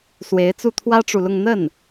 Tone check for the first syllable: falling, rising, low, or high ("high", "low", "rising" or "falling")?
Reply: rising